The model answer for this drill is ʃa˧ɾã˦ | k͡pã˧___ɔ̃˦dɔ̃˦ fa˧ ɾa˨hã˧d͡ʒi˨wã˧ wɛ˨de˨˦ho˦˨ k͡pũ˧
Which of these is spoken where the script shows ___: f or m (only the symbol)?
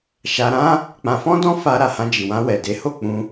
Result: f